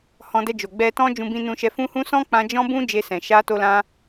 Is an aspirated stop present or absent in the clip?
absent